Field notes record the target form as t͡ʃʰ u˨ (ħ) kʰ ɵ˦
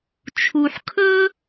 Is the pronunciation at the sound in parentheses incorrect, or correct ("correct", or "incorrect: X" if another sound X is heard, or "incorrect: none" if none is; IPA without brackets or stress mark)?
correct